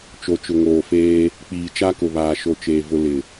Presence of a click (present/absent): absent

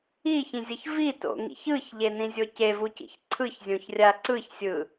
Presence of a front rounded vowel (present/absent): absent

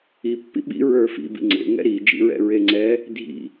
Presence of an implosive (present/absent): present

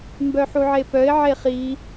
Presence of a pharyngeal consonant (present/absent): present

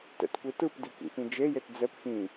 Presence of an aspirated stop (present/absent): absent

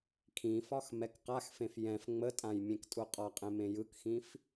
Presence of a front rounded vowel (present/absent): absent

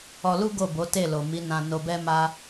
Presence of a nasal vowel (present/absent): present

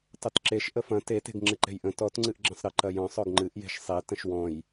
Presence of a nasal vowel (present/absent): present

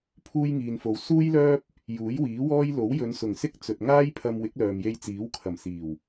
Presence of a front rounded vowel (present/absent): present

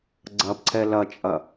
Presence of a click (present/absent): present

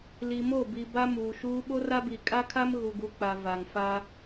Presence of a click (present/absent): absent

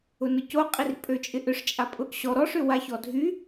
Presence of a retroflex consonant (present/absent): present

